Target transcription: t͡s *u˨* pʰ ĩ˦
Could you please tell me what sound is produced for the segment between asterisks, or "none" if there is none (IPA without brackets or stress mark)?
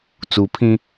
u˨